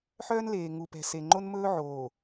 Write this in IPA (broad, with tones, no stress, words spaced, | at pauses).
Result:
ħœː˦nleː˨ŋu˨pɛ̤˨ se˨ ŋ͡ǃo˦nmɵː˦ ʕoː˨